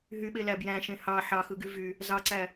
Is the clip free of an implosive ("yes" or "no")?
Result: no